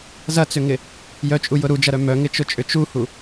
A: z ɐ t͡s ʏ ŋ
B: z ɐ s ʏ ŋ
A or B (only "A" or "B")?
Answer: A